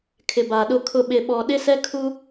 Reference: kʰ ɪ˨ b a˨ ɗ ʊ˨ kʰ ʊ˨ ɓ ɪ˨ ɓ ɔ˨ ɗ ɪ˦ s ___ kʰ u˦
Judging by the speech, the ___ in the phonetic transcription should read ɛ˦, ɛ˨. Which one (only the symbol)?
ɛ˦